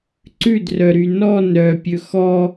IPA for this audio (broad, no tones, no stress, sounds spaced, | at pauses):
ǀ ʉ d r œ ɾ y n ɔ n ɾ œ pʲ ɵ x ɔ